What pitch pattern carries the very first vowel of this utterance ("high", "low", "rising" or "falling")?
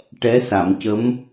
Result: rising